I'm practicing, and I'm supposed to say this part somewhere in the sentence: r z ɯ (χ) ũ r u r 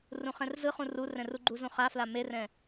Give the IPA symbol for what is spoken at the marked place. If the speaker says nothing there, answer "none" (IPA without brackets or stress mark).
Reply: χ